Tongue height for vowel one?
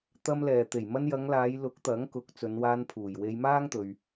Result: low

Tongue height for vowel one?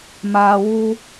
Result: low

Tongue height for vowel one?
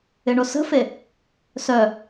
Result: high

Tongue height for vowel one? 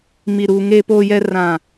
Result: high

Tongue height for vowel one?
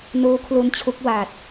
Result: mid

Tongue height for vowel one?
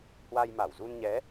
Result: low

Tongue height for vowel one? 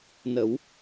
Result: mid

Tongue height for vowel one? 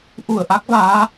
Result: high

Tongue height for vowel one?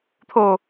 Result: mid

